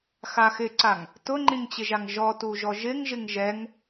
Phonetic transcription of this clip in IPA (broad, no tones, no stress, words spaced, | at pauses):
xaxɪǀaŋ | tʊŋ͡ǃĩŋt͡ɕɪʒaŋ ʒɔ tuʒɔʒɪŋ ʒɪŋʒɛŋ